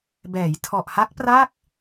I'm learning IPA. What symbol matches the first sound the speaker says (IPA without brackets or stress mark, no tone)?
b